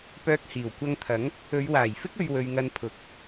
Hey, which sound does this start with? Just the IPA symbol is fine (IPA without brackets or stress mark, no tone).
p